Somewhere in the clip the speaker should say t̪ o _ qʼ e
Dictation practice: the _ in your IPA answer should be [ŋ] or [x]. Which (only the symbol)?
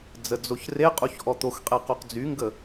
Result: x